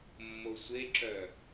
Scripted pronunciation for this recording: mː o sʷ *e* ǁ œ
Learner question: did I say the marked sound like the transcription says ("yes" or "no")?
yes